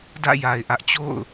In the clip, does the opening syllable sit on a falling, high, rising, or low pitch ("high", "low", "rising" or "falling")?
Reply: falling